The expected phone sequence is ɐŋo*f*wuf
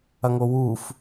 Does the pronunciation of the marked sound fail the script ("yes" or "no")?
yes